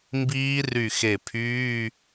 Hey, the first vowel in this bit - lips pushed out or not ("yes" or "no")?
no